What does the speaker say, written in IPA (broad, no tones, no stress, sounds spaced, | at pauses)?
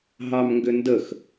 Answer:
ɦ ɑ m ŋ ɡ ʏ n d ə x